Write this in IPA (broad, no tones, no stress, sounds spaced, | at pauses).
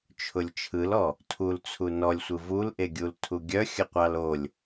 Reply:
t͡ʃʰ ʊ lʲ t͡ʃʰ ɯ l ɔ | tʰ u l t͡sʰ u n ɔ lʲ sʷ ɯ v u l ʔ e ɡʲ u l tʰ u ɡʲ œ xʲ ə qʷ ɑ l o lʲ